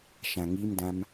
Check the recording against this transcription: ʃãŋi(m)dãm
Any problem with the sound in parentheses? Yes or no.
no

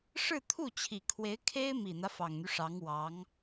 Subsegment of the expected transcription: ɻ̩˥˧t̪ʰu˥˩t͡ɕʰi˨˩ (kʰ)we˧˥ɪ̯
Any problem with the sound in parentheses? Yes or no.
no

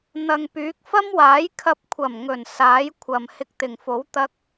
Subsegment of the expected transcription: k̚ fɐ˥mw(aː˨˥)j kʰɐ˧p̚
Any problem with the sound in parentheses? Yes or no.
no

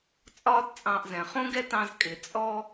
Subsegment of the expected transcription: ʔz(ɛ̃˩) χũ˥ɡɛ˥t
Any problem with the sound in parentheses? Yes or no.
no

